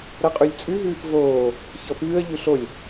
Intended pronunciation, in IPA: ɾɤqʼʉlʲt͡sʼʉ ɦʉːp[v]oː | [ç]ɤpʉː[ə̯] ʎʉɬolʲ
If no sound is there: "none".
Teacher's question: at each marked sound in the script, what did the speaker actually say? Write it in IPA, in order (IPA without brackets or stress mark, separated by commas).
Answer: v, ç, ə̯